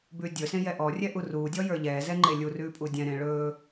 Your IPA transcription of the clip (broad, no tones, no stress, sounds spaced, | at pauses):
b ʉː dʲ ɵ s ẽ j ɛ ʔ ɔ rʲ ɛ ʔ u r uː dʲ ɔ j ə˞ ʎ ɛː z ɛ ŋ͡ǃ e lʲ u r ʉː pʼ u dʲ ɛ̃ ɾ ẽ ɭ ɵː